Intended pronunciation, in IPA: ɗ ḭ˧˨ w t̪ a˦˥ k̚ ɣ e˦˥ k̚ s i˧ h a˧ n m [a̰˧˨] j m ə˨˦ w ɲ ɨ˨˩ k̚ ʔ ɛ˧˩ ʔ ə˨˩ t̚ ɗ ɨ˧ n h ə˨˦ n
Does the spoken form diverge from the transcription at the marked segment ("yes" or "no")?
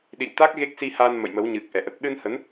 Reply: yes